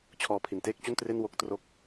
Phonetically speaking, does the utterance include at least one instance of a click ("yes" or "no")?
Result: no